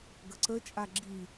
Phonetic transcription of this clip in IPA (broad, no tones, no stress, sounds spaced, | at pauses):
ɡ ə ǀ ə t͡ʃʼ a ɡ͡ǁ i